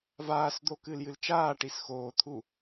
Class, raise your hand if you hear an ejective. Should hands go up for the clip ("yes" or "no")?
no